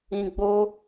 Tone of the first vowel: low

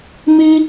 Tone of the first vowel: high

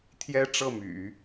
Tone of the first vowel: high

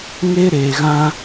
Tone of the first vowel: high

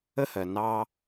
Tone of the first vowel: high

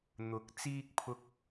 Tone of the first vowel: low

